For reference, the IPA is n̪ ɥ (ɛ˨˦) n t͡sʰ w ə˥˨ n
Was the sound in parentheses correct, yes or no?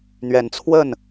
yes